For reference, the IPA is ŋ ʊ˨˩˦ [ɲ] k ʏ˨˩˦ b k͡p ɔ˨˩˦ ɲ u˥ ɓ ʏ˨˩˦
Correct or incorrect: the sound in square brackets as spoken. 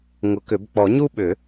incorrect: none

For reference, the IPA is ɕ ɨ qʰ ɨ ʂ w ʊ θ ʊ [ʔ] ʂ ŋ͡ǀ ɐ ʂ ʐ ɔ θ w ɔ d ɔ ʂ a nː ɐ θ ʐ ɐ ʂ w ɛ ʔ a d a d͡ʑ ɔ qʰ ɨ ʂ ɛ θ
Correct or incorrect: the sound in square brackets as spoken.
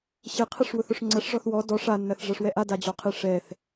incorrect: none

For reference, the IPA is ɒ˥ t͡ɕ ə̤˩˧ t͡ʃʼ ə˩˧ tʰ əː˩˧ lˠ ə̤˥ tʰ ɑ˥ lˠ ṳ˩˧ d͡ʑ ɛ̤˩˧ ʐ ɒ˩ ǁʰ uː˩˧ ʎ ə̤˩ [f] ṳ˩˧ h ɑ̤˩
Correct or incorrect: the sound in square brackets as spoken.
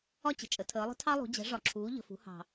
correct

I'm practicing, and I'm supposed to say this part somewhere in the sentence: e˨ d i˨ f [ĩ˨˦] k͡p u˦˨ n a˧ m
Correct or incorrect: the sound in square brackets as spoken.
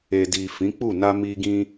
correct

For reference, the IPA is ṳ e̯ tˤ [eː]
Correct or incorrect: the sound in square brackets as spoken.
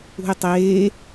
correct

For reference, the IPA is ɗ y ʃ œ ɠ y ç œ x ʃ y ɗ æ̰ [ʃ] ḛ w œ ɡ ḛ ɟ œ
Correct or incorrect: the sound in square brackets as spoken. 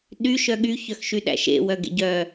correct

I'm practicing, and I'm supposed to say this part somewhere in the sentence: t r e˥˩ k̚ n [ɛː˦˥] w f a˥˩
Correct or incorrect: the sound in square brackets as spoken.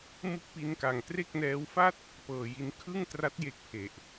correct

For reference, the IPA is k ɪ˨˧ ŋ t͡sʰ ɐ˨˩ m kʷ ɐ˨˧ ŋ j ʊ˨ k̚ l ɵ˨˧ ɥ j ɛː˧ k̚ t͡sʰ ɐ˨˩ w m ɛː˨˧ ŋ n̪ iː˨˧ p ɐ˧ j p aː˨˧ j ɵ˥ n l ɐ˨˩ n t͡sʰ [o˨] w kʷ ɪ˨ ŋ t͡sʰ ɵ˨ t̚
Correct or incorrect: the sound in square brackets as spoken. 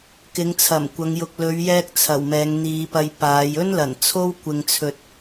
incorrect: o˥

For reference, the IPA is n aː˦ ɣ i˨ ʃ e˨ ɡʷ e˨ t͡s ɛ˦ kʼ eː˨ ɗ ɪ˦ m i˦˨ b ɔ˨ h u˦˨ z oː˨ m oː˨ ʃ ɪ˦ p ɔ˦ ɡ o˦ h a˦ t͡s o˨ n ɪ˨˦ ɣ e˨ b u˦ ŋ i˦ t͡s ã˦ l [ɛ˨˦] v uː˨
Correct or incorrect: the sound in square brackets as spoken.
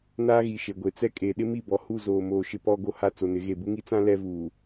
incorrect: ɛ˦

